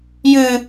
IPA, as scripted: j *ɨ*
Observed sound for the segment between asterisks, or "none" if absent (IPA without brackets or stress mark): ɨ